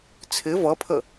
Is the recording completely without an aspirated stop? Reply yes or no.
no